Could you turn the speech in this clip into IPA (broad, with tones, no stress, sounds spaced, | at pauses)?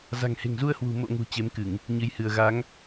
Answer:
z a̤˨˩ ŋ h e̤˨˩ ŋ z u˧ ə̯ h w ṳ˨˩ m o̰˧˨ ŋ ṳ˨˩ t͡ɕ e˨˦ m k ɨ˧˩˨ ŋ | ɲ ɨ˧ j h ɨ˧ ə̯ ɣ a˨˦ ŋ